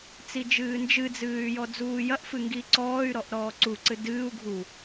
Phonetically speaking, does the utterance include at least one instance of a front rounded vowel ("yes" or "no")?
yes